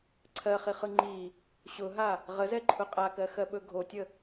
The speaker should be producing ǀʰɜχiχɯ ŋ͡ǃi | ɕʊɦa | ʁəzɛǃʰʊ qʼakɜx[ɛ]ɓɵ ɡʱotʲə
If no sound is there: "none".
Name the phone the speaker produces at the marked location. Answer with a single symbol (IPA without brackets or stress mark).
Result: ɜ